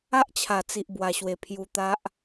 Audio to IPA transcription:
a˦ ʔ t͡ɕʰ a˨˩ t͡s i˨ ʔ b w a˨˩ ɕ w e˨˩ pʰ j u˧ t̪ a˦ ʔ

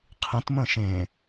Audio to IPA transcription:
qʰ ĩ t m ə̃ː ʃ ẽ

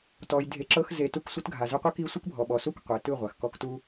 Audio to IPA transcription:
t ɔ˧ j dʱ e˧ ǁ ɤ˦ x z e˨ t u˧ k sʷ ɯ˧ t ɡʱ a˨ z ɯ˧ qʷ ɯ˦ k i˦ sʷ ɯ˦ k bʱ ɔ˨ ɓ ɔ˨ s u˦˨ k qʷ e˨ t ɯ˦˨ ʁʷ a˨ x k ɔ˧ k t u˦

